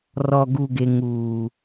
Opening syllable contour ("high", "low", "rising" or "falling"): low